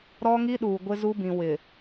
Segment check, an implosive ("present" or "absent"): present